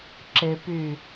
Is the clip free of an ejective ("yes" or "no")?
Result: yes